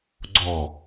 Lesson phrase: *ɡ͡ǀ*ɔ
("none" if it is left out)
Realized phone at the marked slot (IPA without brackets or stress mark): ɡ͡ǀ